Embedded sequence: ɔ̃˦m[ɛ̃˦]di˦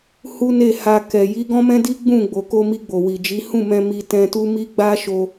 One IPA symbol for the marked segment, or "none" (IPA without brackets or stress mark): ɛ̃˦